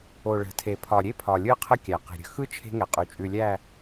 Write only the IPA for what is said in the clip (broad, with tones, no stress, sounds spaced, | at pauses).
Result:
o˨ ɭ ə̤˨ tʰ e˨ pʰ ɒ˨ ɾʲ e˦ pʰ ɒ˨ lʲ ɯ˦ qʰ ə˦ kʲ æ˨ q e̤˨ ɾʲ ə̤˦ x ɯ˦ t͡ʃʰ e̤˦ ŋ ɛ˨ qʼ ʉ˨ t͡ʃʼ ʉ˨ lʲ æ˦˨